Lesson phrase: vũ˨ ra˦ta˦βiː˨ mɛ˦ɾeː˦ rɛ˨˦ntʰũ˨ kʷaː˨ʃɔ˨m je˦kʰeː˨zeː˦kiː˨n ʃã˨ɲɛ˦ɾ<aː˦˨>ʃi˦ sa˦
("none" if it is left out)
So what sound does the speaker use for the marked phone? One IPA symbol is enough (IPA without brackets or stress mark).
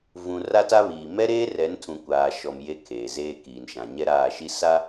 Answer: aː˦˨